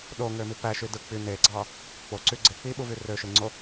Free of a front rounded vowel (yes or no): no